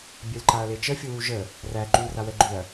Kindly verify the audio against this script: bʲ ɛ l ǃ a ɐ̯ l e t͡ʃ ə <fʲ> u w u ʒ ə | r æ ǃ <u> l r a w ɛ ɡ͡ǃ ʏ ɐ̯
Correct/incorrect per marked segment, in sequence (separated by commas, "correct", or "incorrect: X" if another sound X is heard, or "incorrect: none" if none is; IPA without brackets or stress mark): correct, incorrect: y